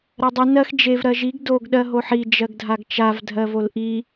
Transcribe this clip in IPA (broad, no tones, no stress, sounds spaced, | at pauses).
ɾ ɜ dˤ i n ɜ x d͡ʒ e v ɾ ɜ ʒ i ɡ d o ɡ ɗ ɜ ɦ o ħ i d͡ʒ ɜ ɡ dʱ a ɡ t͡ʃ a v dʱ ɜ v o l ʔ i